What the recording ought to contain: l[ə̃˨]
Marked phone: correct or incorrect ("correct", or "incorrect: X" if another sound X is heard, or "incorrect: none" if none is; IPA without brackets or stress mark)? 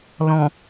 incorrect: ɔ̃˨